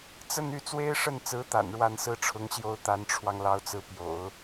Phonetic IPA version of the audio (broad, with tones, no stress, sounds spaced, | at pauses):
t͡s ə˥˧ n y˥˩ t͡s w e˥ ɪ̯ ʂ ə˥˩ n t͡s ɹ̩˧˥ t̪ a̰˨˩ n ɻ w a˥˩ n s ɹ̩˥ ʈ͡ʂʰ ʊ˧˥ ŋ ɕ j o˥ ʊ̯ t̪ a˧˥ n ʈ͡ʂʰ w ɑ˧ ŋ l ɑ˧˥ ʊ̯ t͡s ɹ̩˧˥ p j o̰˨˩˦ ʊ̯